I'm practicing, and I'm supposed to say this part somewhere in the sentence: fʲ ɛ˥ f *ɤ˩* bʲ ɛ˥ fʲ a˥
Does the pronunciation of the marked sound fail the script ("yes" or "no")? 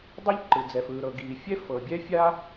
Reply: no